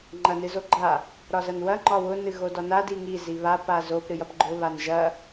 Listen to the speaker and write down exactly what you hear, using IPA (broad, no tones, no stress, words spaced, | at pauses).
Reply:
ŋ͡ǃɐnɨzoɡ͡ǃa | ɾɒzɐnwɐ ŋ͡ǃɒwʊ nɨɣodɒna diŋi ziβa pazop ɾɨjɐpɡ͡ǃʊ βanʒɐ